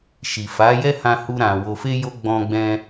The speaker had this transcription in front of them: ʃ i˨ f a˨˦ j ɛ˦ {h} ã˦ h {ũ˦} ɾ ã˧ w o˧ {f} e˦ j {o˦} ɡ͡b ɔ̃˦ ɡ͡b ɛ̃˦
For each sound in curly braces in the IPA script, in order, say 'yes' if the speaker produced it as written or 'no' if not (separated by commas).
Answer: yes, no, yes, yes